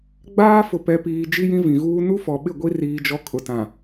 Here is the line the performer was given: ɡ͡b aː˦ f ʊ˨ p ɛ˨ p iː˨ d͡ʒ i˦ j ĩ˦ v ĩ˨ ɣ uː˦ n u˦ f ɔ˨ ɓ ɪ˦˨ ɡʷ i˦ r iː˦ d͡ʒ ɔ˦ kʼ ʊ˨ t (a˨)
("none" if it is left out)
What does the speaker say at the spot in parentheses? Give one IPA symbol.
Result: ã˨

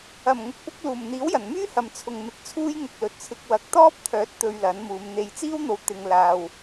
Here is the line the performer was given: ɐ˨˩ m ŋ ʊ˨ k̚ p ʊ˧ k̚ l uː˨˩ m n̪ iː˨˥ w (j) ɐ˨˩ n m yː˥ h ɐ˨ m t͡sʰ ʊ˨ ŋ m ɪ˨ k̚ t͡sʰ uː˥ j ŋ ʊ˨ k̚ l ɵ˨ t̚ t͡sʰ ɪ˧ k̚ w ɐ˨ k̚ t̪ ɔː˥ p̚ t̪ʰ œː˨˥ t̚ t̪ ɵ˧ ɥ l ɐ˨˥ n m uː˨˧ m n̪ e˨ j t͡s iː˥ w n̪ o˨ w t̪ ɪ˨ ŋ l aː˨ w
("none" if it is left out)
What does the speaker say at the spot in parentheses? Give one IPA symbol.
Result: j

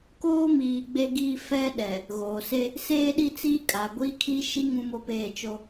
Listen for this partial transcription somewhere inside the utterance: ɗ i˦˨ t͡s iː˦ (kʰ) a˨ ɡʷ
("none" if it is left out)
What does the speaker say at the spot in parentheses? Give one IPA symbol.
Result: kʼ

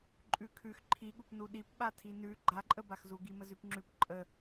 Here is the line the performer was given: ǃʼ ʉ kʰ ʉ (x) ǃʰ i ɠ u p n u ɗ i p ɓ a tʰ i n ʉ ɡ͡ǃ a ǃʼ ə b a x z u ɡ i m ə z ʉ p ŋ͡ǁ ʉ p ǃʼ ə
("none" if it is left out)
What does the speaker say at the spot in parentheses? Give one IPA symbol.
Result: x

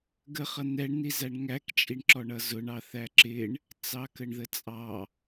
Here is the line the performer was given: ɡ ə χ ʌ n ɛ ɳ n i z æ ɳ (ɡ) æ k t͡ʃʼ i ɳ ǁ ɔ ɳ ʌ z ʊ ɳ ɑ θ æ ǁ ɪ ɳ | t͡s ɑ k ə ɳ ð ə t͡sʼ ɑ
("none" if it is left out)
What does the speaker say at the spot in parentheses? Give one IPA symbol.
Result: ŋ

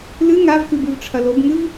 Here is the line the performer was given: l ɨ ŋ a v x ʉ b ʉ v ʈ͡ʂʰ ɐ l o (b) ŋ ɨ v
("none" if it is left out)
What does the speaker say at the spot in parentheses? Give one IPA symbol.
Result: b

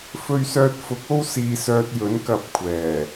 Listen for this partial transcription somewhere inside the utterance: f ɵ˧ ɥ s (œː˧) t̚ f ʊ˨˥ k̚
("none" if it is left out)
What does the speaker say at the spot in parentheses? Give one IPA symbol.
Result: œː˧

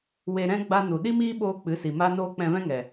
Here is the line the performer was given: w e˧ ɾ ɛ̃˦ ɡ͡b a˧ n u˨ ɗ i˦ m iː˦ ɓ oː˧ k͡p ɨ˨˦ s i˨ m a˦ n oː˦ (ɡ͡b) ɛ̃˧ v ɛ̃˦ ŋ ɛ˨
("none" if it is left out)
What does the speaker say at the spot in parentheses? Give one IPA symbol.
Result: k͡p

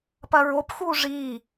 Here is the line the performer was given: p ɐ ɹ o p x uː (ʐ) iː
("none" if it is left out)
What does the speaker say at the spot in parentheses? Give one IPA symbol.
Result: ʐ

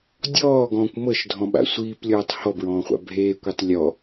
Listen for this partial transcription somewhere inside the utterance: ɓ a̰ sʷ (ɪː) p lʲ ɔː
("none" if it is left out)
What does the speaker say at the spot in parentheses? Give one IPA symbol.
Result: iː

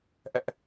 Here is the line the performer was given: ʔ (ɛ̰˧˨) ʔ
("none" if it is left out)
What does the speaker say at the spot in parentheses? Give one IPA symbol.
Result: ɛ̰˧˨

